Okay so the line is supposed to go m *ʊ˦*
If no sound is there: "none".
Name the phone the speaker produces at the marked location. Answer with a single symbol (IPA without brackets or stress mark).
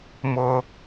ʊ˦